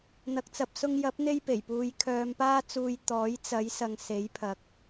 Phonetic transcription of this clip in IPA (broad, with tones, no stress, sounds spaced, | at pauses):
n̪ ɐ˨ k̚ t͡s ɐ˨ p̚ s ʊ˧ ŋ j ɐ˨˥ p̚ n̪ e˥ j p e˨˩ j p uː˧ j kʰ œː˧ m p aː˥ t͡s uː˧ j t̪ ɔː˨˥ j t͡s ɐ˨˥ j s ɐ˨ ŋ s e˨˥ j pʰ ɐ˨˥ k̚